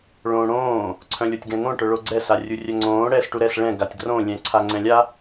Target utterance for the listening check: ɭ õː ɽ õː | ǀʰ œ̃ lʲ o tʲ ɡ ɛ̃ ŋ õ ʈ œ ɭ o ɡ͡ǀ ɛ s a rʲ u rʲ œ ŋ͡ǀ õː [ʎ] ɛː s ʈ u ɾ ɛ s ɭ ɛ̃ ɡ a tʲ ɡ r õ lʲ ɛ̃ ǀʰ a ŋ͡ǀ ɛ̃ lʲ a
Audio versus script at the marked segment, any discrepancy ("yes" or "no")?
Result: yes